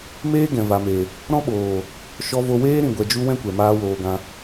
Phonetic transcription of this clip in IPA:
meː˦ɡɛ̃˨ va˨me˨ | ɾɔ̃˦ɓoː˨ | ʃɔ˧vo˧weː˦ ɾĩ˨ɡʷɛ˨d͡ʒu˧ wɛ̃˦kʷɛ˨maː˧ woː˧ɡã˧

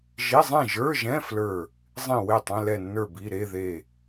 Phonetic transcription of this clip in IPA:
ʒi˧˥˧zˤẽ˥˨ ʒə˞˧˥˧ʒɛ̃˧˥˧ flə˞˥˨ | zˤĩ˥˨ we˥˨tˤɛ̃˧˥˧ lɛ˥˨nːə˞˥˨bi˧˥˧ ɾe˧˥˧ðe˥˨

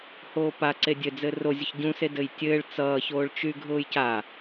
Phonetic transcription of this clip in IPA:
hoːpaǀe dʲɘd͡zɘ rozʲʊç ɟũse dɘjtʲɘːɭ t͡sʌːçoːɭ t͡ʃyɡʱʊːjca

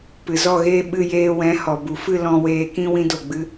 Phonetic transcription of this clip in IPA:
pɨ˨zɔ˦˨ɣeː˦ ɓɨ˧jeː˧wɛ̃˨˦ hɔ˨bu˨fɨ˦˨ lɔ̃˧weː˧kĩ˦ wĩ˦do˦˨ɡ͡bɨ˦

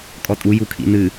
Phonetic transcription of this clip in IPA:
kʼɔtʼu jukʰḭnɨ

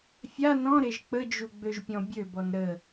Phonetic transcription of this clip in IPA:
fʲa nɔ̃ɾeʒ k͡pəd͡ʒu ɡ͡bøʒpʲɔ̃bʲøbɔn ɾə

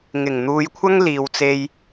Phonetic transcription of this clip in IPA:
ŋɪ˨˩ŋn̪uː˨˧jkʷʰɐ˥ŋ liː˧wt͡se˥j

